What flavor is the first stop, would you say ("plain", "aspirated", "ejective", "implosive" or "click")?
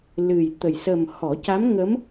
plain